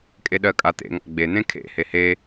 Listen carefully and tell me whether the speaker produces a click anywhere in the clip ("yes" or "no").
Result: no